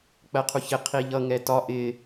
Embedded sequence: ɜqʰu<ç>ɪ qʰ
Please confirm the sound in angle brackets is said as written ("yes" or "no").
yes